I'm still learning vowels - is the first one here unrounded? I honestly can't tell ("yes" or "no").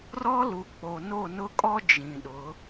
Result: no